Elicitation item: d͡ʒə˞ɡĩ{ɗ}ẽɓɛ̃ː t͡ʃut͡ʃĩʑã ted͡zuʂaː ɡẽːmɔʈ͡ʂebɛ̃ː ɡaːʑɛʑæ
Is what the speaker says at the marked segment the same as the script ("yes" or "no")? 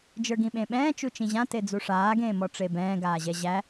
no